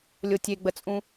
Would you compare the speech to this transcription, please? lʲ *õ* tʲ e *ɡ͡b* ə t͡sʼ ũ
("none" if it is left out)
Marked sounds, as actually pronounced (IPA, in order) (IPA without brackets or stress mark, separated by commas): o, ɡ͡b